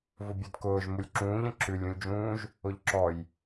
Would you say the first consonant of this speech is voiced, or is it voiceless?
voiced